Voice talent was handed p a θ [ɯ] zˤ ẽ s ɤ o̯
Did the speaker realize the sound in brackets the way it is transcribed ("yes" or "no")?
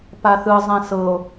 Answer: yes